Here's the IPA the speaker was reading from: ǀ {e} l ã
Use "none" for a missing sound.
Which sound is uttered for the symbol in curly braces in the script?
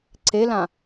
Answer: e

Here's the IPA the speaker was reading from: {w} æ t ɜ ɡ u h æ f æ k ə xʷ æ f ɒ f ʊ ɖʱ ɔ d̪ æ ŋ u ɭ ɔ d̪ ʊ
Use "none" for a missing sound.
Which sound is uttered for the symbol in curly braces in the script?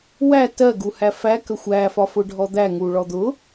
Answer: w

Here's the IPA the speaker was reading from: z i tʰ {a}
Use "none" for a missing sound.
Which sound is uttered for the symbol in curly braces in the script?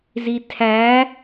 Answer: æ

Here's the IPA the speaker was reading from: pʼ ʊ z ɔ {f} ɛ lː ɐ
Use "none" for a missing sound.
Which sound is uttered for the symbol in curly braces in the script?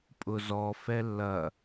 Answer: f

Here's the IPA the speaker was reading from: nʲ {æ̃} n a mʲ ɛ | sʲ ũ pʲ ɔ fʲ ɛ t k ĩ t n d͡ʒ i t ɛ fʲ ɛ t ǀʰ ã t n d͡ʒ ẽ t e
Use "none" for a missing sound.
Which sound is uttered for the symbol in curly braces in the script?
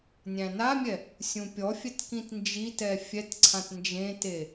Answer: æ̃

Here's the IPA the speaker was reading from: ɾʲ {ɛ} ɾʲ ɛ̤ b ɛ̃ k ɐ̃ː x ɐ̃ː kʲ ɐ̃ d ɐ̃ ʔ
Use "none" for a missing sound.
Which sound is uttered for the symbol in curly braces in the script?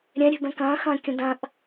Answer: ɛ̃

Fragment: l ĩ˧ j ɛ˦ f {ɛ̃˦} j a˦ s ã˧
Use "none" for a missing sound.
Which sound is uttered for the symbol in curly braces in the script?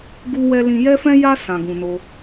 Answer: ɛ̃˦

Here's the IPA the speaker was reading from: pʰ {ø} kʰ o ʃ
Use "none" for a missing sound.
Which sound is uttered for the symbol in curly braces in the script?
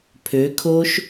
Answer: ø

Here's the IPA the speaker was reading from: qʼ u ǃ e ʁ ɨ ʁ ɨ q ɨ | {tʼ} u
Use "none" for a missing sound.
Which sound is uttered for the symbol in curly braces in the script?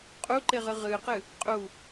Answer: qʼ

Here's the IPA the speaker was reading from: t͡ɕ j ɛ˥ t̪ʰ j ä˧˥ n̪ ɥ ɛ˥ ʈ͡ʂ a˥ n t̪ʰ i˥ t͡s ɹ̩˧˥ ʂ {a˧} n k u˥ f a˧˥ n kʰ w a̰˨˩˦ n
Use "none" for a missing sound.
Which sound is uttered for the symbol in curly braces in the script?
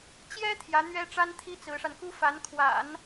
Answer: a˧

